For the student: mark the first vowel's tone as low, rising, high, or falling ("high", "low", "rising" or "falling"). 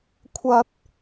high